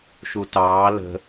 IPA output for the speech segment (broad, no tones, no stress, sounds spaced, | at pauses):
ʃ u t ɑː l ə̤